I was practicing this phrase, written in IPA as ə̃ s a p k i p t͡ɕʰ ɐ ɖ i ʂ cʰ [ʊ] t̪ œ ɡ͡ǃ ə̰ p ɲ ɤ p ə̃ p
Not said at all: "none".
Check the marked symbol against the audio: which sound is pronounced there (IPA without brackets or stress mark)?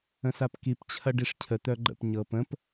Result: ə